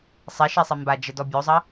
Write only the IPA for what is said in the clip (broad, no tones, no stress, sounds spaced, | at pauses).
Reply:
sˤ ɛ ʃ ɛ sˤ ɛ m b a d͡ʒ ə d ɔ bʲ o zˤ ɐ